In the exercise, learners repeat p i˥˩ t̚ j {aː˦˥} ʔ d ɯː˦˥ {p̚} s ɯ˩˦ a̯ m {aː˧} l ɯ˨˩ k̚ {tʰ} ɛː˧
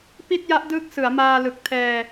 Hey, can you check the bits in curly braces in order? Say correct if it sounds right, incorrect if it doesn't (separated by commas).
incorrect, incorrect, correct, correct